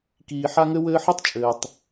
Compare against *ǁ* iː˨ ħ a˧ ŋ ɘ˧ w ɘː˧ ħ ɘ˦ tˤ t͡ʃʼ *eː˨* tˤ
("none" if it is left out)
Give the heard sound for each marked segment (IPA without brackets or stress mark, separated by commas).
k, ɘː˨